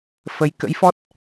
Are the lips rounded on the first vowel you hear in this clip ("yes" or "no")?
no